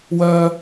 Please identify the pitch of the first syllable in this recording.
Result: high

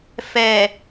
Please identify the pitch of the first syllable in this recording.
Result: low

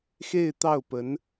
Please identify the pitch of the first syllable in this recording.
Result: falling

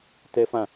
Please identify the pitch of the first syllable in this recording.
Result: high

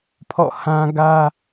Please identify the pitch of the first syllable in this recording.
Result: falling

